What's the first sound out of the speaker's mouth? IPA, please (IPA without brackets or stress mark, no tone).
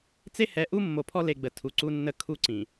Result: t͡s